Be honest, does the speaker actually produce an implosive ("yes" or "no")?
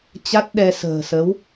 yes